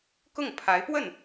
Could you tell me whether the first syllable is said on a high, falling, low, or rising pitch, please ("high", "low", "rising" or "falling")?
falling